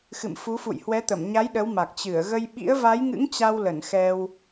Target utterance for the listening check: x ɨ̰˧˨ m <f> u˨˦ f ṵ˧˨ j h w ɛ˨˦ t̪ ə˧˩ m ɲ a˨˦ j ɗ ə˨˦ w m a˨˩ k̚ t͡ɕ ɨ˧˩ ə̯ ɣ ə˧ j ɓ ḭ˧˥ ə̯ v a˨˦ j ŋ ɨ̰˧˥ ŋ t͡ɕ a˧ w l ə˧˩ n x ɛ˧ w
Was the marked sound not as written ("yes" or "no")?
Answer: no